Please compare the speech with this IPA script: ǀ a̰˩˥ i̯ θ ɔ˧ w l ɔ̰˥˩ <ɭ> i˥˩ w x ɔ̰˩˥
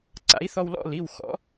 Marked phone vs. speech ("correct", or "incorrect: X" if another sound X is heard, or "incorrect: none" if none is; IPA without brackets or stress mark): incorrect: l